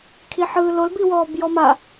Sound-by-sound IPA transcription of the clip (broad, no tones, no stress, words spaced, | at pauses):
kʰiħɯːlol biwɔːbjɔma